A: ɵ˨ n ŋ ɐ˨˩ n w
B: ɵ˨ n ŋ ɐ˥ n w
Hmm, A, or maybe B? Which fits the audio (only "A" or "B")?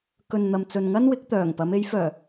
B